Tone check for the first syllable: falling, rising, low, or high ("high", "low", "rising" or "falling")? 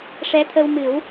rising